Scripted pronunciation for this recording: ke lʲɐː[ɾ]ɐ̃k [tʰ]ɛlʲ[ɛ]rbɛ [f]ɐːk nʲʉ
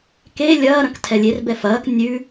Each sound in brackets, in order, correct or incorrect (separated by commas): correct, correct, incorrect, correct